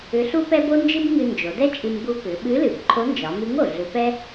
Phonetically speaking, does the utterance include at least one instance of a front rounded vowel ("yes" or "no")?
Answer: yes